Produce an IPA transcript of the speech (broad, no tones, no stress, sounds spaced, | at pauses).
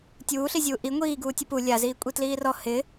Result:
tʲ uː ɬ i zʲ uː ʔ i ŋʷ iː ɡ uː tʲ ʊ p u lʲ a z iː kʷʼ i t l iː r ɔ h ɪ